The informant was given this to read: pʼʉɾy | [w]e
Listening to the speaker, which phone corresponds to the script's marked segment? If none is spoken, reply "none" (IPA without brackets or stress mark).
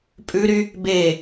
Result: b